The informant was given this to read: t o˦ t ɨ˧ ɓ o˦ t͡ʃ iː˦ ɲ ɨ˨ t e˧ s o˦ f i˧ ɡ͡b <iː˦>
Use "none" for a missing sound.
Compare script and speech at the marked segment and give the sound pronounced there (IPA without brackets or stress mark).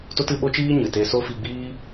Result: iː˦